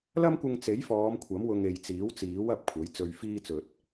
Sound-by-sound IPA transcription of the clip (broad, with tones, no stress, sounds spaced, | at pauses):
l ɐ˥ m kʷ ɪ˧ ŋ t͡s e˨˥ j f ɔː˨˧ m kʷʰ ɐ˨˥ m w ʊ˧ ŋ e˨ j t͡s iː˨˥ w t͡s iː˨˥ w ɐ˧ p̚ kʷʰ ɐ˨˥ j t͡s ɵ˧ ɥ f iː˥ t͡s ɵ˧ t̚